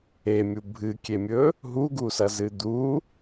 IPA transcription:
emʲu bʱɨkʲemʲɵ | ɦuɡusɐzɨ d̪u

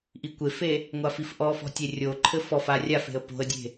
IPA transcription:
ʔikʷefe | ŋʷafifʔɔfɔ̤ tʲerʲoǃʰɘ fɔfa rʲafe̤ə̯ po̤ə̯dʲe̤

